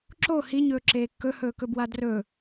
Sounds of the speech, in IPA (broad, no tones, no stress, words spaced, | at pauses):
ǁo hiɲɵː ǁeːkːɵhɵːkɵ bwadrɵ